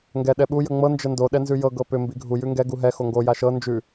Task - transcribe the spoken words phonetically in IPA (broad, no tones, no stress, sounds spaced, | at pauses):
ŋ ɡ ɛ ɗ ɛ ɓ u j ə ŋ͡m ɤ n d͡ʒ ə n d o ɗ ɛ n z ʉ j ɤ ɡ ɤ p ʏ m b i ɡʱ u j ʉ ŋ ɡ ɛ ɡ u ɦ ɛ x o ŋ ɡ o j a ʃ ɤ n d͡ʒ ʉ